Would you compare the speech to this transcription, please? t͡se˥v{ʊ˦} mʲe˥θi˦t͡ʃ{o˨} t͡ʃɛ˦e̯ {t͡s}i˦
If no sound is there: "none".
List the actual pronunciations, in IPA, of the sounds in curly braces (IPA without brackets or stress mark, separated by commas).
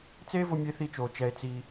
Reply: ʊ˦, o˨, t͡s